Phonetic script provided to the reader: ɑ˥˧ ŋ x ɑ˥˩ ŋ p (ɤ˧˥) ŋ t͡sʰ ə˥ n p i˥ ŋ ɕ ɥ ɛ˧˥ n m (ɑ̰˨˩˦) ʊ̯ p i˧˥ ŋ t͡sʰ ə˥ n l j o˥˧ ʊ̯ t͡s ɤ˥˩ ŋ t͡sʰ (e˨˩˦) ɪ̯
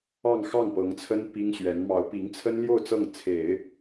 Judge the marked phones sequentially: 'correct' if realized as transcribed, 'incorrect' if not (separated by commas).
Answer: correct, incorrect, correct